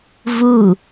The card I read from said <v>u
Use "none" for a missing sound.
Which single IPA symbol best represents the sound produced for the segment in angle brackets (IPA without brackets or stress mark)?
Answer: v